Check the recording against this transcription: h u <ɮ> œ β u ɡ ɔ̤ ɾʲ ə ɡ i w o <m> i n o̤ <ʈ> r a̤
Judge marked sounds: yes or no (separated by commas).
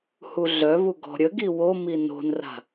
yes, yes, no